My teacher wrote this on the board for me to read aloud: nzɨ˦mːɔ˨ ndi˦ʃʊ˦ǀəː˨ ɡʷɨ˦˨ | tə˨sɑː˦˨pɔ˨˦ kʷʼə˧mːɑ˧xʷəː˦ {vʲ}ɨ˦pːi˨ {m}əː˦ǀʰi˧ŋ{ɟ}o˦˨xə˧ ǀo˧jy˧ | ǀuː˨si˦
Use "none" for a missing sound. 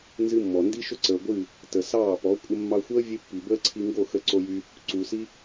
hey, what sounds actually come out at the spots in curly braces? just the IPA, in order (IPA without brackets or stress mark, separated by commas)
vʲ, b, ɡ